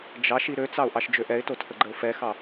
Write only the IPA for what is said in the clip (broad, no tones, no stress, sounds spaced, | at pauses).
d͡ʒ ɑ ʃ i ɾ ø t͡s ɑ ʊ̯ ʔ ɑ ʃ d͡ʒ ø ʔ ɛ ɪ̯ t o tʰ ə ɡ͡ǃ ə ʊ̯ f ɛ x ɑ